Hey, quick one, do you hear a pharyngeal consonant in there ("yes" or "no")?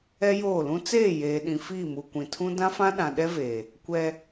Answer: no